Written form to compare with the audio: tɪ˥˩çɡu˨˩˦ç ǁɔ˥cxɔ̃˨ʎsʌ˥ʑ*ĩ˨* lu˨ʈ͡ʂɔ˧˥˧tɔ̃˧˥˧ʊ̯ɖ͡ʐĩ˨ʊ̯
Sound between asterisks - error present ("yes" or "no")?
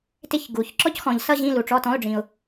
yes